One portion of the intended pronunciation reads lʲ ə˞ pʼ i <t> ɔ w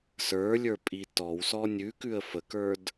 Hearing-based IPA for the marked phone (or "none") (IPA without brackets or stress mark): t